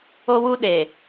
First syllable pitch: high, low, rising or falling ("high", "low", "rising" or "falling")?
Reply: high